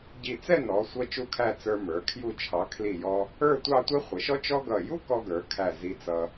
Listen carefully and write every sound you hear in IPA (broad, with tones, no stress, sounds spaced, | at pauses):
ɟ i˧˩ t͡s ɛ˥˧ n ɔ˩˧ sʷ ʌ˧ t͡ʃ u˧˩ kʰ æ˧˩ t͡s ə˞˧ m ə˞˩˧ kʰ j u˧˩ t͡ʃʰ ɑ˩˧ kʰ l i˧˩ j ɔ˧ | ə˞˥˧ tʷ ɑ˥˧ tʷ ɛ˥ χʷ ə˩˧ ʃ ɔ˥ t͡ʃ ɔ˥ ɡ ʌ˧˩ j u˥ k ɔ˧ ɡ ə˞˩˧ kʰ æ˧˩ z i˧ t͡s ʌ˧